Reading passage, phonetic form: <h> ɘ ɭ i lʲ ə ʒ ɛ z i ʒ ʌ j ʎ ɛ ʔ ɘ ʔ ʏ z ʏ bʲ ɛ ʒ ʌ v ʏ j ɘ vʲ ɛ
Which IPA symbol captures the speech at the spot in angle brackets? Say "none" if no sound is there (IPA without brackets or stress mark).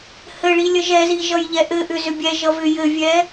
h